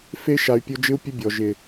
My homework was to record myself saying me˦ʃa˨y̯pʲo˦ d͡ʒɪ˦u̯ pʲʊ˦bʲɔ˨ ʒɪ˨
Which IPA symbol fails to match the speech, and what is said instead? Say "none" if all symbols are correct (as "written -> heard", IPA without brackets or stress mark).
m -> f